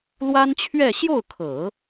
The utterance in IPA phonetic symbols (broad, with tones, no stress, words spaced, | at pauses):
lwa˥nt͡ɕʰɥɛ˥˧ ɕjo˥˩ʊ̯kʰɤ˨˩˦